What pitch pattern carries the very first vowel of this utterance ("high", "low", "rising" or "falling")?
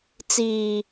low